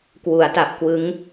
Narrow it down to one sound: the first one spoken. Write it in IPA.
k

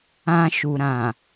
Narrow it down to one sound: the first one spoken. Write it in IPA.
ã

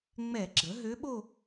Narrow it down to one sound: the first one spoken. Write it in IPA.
ŋ͡m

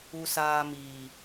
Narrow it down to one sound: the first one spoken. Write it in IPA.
u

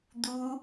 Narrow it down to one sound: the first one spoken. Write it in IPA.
d̪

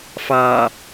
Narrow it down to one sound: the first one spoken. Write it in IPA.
f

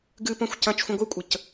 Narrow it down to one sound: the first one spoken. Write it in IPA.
ɡ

